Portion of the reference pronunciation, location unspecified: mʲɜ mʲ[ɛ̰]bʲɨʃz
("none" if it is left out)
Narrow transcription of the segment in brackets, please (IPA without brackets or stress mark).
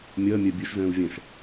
ɛ